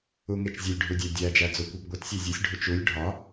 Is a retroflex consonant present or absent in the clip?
present